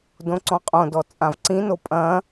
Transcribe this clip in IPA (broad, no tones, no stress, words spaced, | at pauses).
dõǀɔ̃qʼõdɔ t͡sʼãvǀĩno pʼɐ̃